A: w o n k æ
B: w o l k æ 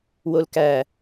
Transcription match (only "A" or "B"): B